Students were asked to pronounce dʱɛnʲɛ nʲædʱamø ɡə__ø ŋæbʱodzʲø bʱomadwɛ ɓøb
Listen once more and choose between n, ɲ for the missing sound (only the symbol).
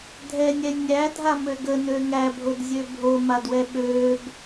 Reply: n